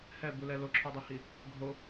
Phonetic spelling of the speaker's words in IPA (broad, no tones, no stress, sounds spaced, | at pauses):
h ɛ b u l ɛ l o ǁʰ ɔ dˤ o h i | ɡʱ o